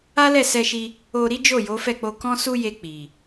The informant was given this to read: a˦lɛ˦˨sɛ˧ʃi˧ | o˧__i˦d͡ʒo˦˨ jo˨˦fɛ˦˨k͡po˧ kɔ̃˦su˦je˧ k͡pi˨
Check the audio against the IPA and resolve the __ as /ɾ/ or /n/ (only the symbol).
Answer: ɾ